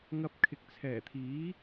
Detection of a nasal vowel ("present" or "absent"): absent